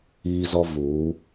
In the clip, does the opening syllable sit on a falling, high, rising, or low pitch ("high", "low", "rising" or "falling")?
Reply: high